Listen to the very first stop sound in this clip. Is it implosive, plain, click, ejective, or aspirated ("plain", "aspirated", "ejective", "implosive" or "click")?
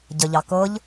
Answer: plain